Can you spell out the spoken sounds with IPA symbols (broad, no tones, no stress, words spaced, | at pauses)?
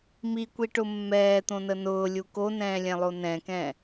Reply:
mikʷiʈʊ mːɛːt̪õnə nʊːlʲu konɛ̃ːlʲɛ̃lˠo nɛ̃kɛ̃